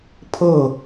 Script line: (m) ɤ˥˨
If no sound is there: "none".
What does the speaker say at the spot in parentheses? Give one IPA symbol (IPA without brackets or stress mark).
pʰ